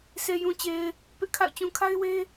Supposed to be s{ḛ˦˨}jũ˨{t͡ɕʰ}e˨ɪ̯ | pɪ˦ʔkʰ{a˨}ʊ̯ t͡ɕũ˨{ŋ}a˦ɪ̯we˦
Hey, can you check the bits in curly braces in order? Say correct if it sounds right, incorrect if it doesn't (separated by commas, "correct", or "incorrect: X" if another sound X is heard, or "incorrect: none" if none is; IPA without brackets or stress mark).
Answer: incorrect: e˨, incorrect: t͡ɕ, incorrect: a̰˦˨, incorrect: kʰ